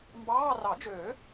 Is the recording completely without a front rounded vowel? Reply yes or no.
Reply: no